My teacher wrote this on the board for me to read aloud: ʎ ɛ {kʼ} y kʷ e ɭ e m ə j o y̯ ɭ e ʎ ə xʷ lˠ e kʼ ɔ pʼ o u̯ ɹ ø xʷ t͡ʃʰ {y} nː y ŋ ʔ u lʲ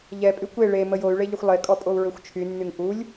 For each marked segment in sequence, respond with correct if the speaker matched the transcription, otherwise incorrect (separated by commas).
incorrect, correct